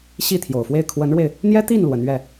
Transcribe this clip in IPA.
ɕ i˥˩ t̪ʰ j o˨˩ ʊ̯ f w e˥˩ ɪ̯ kʰ w ə˧˥ n ɻ w e˧ ɪ̯ | n̪ j ɛ˥ t̪ i˥˩ n l w ə˧˥ n ɥ ɛ˥˩

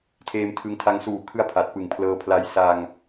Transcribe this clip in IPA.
tʰ eː˧ m tʰ ɯ˧ ŋ tʰ a˧ ŋ s uː˨˩ kʰ ɯ˦˥ a̯ pʰ a˨˩ t̚ p ɯ˨˩ ŋ pʰ l ɤː˧ pʰ l a˦˥ j s a˧ ŋ

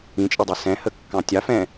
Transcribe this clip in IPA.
ĩ t͡ʃʼ ɪ dˤ ʌ s ɛ̃ h ə kː ɑ̃ tʲ ɑ f ɛ̃

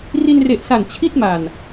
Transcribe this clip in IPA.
r i˧ n r e˨˩ ʔ s a˨˩ n t͡ɕʰ i˥˩ t̚ m a˨˩ n

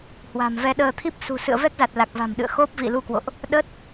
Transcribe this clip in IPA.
h w a̤˨˩ m v ɛ˧ ɗ əː˧ t̪ʰ i˦˥ p̚ s ṳ˨˩ s ɨ̰˧˨ ə̯ v ɛ˦˥ k̚ z a˨˩ t̚ l a˨˩ k̚ v a̤˨˩ m ɗ ɨ̰˧˨ ə̯ x o˦˥ p̚ v ḭ˧˨ l u˧ k w o̰˧˨ ʔ | ɗ ə˦˥ t̚

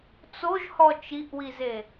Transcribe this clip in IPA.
t͡s o ʒ h ɔ t͡ʃ i ʔ w i z e

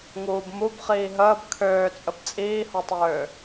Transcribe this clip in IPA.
ŋ uː b m u b χ iː ɦ əː b kʰ øː t͡sʼ ə b t͡sʼ iː h ɔ tˤ øː

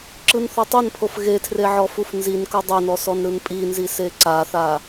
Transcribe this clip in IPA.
ǁ ɯ n θ ɔ tˤ ɯ n pʰ o f ɣ e tʰ r e ʕ ɔ f u f n z i n k ɤ dˤ e n ɔ s ɔ n ɾ ɯ n pʼ i n z i s e ǀ a θ a

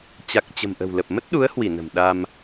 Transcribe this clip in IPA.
t͡ɕ a˨˩ k̚ t͡ɕ ə̤˨˩ m ʔ ə̤˨˩ w l ə˨˩ p̚ m ə˦˥ t̚ ɗ u˨˦ ə̯ h w i˧˩ n ə̤˨˩ m ɗ a˧ m

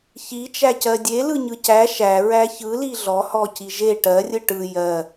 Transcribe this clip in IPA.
ç i t͡ʃ æ c ɜ dʲ e l ɯ ɲ ɯ c æ ʃ æ ɹ æ ç ɯ l i ɮ ɔ h ɔ c i ʒ e ʈ ɜ rʲ ɯ ʈ ɯ j ɜ

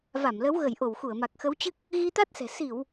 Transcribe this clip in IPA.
v a˧˩ m l ə˨˦ w ɣ ə˧˩ j ʔ o˧˩ w x u˧˩ ə̯ m a˨˩ k̚ x ə˨˦ w t͡ɕ ɨ˦˥ k̚ | ɣ i˧ t̪ a˦˥ t̚ s ɛ̤˨˩ s i˧˩˨ w

